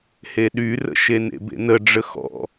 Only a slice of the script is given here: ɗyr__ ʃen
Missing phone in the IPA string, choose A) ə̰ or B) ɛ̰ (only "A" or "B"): A